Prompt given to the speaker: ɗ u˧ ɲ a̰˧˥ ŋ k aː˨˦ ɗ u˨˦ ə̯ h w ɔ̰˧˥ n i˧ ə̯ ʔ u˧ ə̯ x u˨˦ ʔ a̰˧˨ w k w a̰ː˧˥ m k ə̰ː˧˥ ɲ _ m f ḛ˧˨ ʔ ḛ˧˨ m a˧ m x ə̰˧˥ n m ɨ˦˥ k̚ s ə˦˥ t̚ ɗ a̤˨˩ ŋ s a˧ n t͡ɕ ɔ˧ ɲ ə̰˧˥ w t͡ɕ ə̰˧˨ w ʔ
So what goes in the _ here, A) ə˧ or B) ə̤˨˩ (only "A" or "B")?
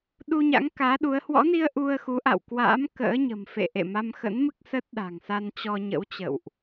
B